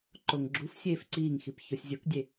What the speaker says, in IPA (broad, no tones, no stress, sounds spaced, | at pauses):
ǃ o ŋ ɡ͡ǁ u f sʲ eː f ǀ iː ŋ x i p ç o sʲ zʲ o k dʲ e